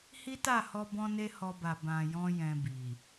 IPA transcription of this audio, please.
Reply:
h i˦ t a˦˨ h ɔ˧ b ɔ̃˦ n e˦ h ɔ˧ b a˨ b ã˨ j ɔ̃˧ j ɛ̃˧ b i˨

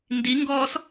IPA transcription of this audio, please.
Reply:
n d i ŋ ɡ ɔː s

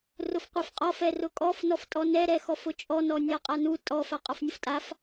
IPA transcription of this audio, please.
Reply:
r ʊ f qʷ ɛ f qʼ ɔ f ɛ r ʊ kʼ ɔ f n ɔ f tʼ ɔ n ɛ ɾ ɛ x ɔ f ʊ t͡ʃʼ ɔ n ɔ nʲ a qʼ a n u tʼ ɔ f a qʼ ɔ f nʲ ʊ f tʼ a f

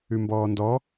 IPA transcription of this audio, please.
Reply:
ʉ m b ɔː n d ɔ

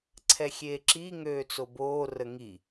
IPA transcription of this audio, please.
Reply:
ǀʰ ɛ xʲ eː ǁ i ŋ øː t͡s o b oː r ə ŋ i

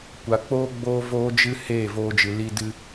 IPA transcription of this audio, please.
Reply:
kʷ a˨ k͡p oː˦ ɡ͡b oː˦ v oː˦ d͡ʒ ɨ˦ h eː˦˨ v oː˧ d͡ʒ ɨ˨ l i˧ d ɨ˧

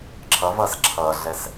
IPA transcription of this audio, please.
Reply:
ǁʰ ʌ v ʌ s ǁʰ ʌ ɮ ɛ s

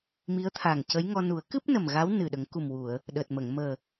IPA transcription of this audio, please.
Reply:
m i˧˥ ə̯ t̪ʰ a˨˩ ŋ c ə˧˥ j ŋ ɔ˧ n u˨˩˦ ə̯ k ɨ˦˥ p̚ n ə˨˩ m ɣ a˧˥ w n ɨ˨˩ ɗ ə˨˩˦ ŋ k u˨˩ m w u˨˩˨ ə̯ | ɗ əː˨˩ t̚ m ə˨˩˨ ŋ m əː˨˩

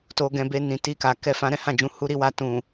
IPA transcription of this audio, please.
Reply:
t o˧ ɡ ɛ̃˧ b e˧ n ĩ˨ t i˧ k a˨ k ɛ˧ f ã˧ ɾ ɛ̃˦ h ã˦˨ d͡ʒ ũ˨˦ h u˦ ɾ i˧ w a˧ t ũ˨

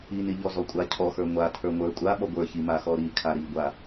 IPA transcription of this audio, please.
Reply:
i n i ʎ ɔ z ɔ kʷʼ a cʰ ɔ x ə˞ ŋʷ a tʰ ə˞ ŋʷ ə˞ kʷʼ a ɓ ɔ ɡʷ ə˞ ç i m a x ɔ ɾ i kʰ a ɾ i ɡʷ a

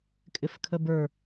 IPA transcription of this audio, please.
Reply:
kʼ ɪ f kʰ ə b ə˞

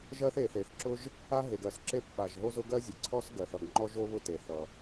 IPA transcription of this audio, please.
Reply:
ʒ ɜ˥ θ e˩ θ e˩ θ ǁ ʊ˥ ʒ | a˥ ɦ e˩ ɡ ɜ˩ s ǁ e˥ p ɓ a˩ ʒ ɦ o˥ z ʊ˥ ɡ ɜ˥ zʲ ʌ˩ ǀʰ ɔ˥ s ɡ ɜ˩ θ ʌ˩ ɡ ŋ͡ǃ ɔ˥ ʒ o˥ β ʊ˥ t e˩ θ ʌ˩

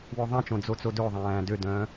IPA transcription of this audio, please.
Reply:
w ɵ ðˤ æ̃ t͡ʃ õ d͡z o t͡s o d ɵ ðˤ æ̃ː d ø d œ̃ː

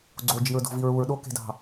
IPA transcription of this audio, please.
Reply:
ɡ͡ǀ o d͡ʒ i ɹ d o̤ v i ɹ u ɹ ɗ o k e̤ d ɑ̤

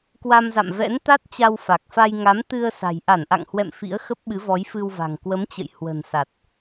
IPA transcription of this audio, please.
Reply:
k w a˧ m z a̰˧˨ m v ɛ̰˧˥ n t̪ a˦˥ t̚ t͡ɕ a˧ w f a˨˩ k̚ f a˧ j ŋ a˨˦ m t̪ ɨ˧ ə̯ s a̤˨˩ j ʔ a˧˩ n ʔ a̰˧˨ ŋ h w ɛ̰˧˨ m f ḭ˧˥ ə̯ x ə˦˥ p̚ ɓ ɨ˨˦ v ɔ˨˦ j f ɨ˧ w v a̤˨˩ ŋ k w ə˨˦ m t͡ɕ ə̰˧˨ j h w ə̤˨˩ n s a˨˩ t̚

